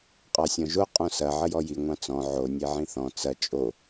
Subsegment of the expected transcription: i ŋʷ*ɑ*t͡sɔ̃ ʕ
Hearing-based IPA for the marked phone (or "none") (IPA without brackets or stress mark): ɑ̃